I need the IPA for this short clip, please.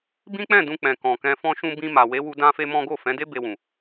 bĩ˦k͡pɛ̃˦˨dũ˧ k͡pɛ̃˨kɔ̃˨ kɛ̃˧fɔ̃˦ʃũ˦ bĩ˧ ma˨we˨˦wu˧ dã˦fe˦mɔ̃˦ ɡo˦˨fɛ̃˨˦de˦ be˧wũ˨

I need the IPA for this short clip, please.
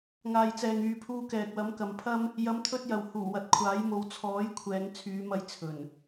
ŋaː˨jt͡sɛː˨ŋ yː˨pʰuː˧kɛː˨k̚ wɐ˨˥mkɐ˨˧mpʰɐ˥m | jɐ˨˧mt̪ʰɵ˧t̚ jɐ˨whuː˨˩wɐ˨˥t̚ kʷʰaː˨˥jmo˨˧w t͡sʰɔː˨˥jkʷʰɛː˨˧ŋ t͡sʰyː˨˧mɐ˧j t͡sʰɵ˨˩n

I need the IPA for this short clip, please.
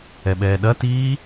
ɛɓɛːɗɐtiː

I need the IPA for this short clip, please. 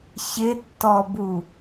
çɪtːɔbu

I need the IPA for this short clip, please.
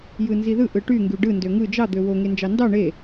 jɯnziðɯ ʔɯʈy ŋɡyɖɯ ndøŋɯ d͡ʒɑ d̪øwo ŋend͡ʒɑndɑ ɳe

